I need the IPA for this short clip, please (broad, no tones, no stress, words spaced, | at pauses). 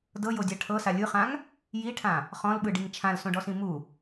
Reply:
dɤjodʲa ʈʰɤsa lʲɯχãŋ | jiʈʰã | χɔ̃lɓɯɖiŋ t͡ʃʰãlsõɖɔsĩ mu